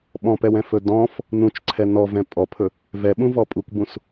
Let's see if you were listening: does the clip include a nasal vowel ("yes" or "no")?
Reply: yes